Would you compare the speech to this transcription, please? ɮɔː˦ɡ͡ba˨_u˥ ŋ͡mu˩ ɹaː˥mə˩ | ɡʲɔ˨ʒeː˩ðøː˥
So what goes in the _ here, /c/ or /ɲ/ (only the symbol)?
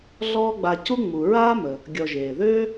c